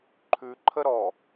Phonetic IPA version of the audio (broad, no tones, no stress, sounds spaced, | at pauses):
ǃʰ ʉ ǃʰ ə ɾ ɔ